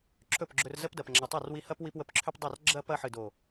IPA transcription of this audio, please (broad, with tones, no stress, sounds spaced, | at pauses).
ǁʰ ɵ˦˨ p ɡ͡ǁ ɵ˧ r z ə˦ p d ɐ˨ p ŋ͡ǁ a˨ tˤ ɐ˦˨ r w i˧ h ɐ˦ p w i˧ p w ə˧ p ǁʰ ʏ˦ p dˤ ɐ˦˨ r ɡ͡ǁ ɐ˦ p ɐ˧ ħ ɨ˨ d o˨